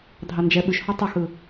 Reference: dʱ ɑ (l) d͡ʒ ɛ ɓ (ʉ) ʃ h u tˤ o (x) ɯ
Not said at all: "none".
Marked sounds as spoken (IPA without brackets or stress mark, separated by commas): n, ʉ, x